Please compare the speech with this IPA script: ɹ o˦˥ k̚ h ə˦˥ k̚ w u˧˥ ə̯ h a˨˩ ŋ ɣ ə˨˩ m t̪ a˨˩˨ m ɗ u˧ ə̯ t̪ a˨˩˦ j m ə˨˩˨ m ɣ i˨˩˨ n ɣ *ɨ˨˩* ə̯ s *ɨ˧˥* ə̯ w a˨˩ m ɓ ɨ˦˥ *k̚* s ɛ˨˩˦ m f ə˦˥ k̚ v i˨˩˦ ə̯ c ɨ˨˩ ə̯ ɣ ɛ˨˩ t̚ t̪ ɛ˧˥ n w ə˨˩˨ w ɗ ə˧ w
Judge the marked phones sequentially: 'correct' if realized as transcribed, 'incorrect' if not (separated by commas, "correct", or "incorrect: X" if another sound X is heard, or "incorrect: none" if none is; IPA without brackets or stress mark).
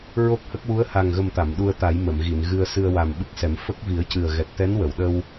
incorrect: ɨ˧, incorrect: ɨ˧, correct